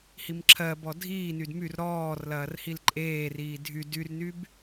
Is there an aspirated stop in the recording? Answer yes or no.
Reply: yes